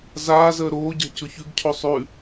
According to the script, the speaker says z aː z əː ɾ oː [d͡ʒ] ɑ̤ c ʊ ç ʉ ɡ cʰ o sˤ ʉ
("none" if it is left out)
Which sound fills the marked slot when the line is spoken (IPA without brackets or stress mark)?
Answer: ɟ